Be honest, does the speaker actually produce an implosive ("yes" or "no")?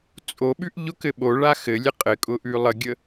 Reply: yes